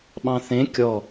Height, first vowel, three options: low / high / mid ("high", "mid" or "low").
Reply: low